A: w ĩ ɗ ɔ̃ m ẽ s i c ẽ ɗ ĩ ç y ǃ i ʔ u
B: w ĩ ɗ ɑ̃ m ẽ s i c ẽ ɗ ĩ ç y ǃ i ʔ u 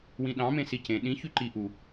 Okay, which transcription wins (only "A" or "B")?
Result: B